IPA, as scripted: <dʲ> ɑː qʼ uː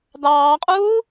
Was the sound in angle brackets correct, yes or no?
no